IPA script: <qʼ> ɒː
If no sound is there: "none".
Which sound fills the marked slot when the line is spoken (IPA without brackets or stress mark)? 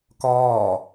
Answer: k